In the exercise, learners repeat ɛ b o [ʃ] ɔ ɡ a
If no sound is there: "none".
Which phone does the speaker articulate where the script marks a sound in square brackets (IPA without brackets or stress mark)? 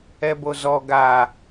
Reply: z